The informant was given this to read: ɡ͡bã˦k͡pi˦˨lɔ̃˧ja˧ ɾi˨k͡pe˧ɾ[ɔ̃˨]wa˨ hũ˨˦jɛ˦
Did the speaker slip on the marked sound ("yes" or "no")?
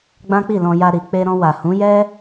yes